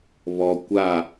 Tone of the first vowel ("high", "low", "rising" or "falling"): low